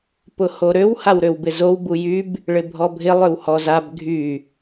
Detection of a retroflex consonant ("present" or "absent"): present